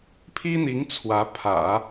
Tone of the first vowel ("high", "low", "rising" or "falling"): high